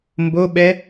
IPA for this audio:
mboɓɛ

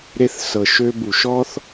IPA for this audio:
ɾe˧θ sɤ˨ʃø˧bu˨ ʃɔ˧θ

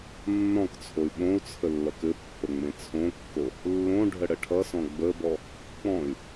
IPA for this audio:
nːɔ̃kt͡sʰoy̯ ɓõu̯t͡sʰə lːʌkɘpːə ŋ͡mẽt͡sʰõkːo | lːõ ɖʱəɽəʈʰʌsɔ̃ ɡ͡bəbɔ | k͡pɔ̃y̯

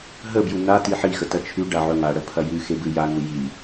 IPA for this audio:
ɦəbju na tiħixə tɐt͡ʃʰʉɖa ʕɵŋaɽə pʰɐjʉxe bɨjaŋu ji

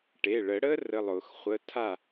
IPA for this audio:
ʈe˩˧˩ɭə˨˩˦ɽə˦˥ rə˧˥˧lˠʊ˨˩˦xχʷə˧˥˧ tʰa˦˨

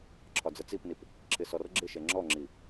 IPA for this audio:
ǁʰɒd͡zət͡sipnip | ǁʰɪsɔrɡ͡ǁɪʃɛ ŋ͡ǁɔŋ͡ǁi

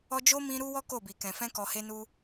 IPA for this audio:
ɔ˧d͡ʒo˦ mĩ˧ ɾu˦wɔ˦ ko˦˨bi˨kɛ̃˨ fɛ̃˧kɔ˨he˧nu˧

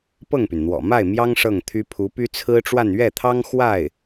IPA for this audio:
pɤ˥˩ŋpy˩nn̪wɔ̰˨˩ ma˥˩ɪ̯mjɑ˥ŋ ʂɤ˥˩ŋt̪ʰy˥ pʰu˧˥py˥ t͡sʰɹ̩˥ʈ͡ʂwa˥˧n ɥɛ˥˩t̪ʰɑ˥ŋ xwa˥˩ɪ̯

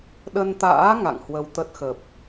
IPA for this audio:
ɗə˧nt̪a̰ː˧˥ ŋa̰˧˨ŋhwə˧wt̪ə˦˥t̚xə˨˩p̚

